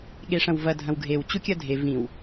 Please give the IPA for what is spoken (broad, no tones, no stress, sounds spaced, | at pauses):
ɠ e ʂ ɐ̃ w v ɐ dʱ ɐ̃ w ɡʱ e w t͡ɕ u kʲ ɐ dʱ e v ĩ w